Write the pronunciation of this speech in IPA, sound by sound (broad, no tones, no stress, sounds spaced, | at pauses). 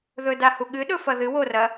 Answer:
ð ɵ d a h u ɠ ɨ ɗ ɵ f ɐ ð ɨ w o r ɐ